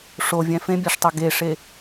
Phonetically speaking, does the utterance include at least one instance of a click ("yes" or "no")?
no